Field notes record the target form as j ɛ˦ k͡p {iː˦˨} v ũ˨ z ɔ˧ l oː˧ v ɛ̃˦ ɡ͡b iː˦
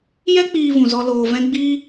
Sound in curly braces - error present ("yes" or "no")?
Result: yes